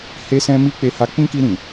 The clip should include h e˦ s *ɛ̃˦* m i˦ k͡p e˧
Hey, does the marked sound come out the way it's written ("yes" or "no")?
yes